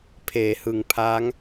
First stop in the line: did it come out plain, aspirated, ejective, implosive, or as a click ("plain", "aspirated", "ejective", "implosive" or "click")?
aspirated